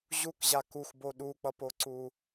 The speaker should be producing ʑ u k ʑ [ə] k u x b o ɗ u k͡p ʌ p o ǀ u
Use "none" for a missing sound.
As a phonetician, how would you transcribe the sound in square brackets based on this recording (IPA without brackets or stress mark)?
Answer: a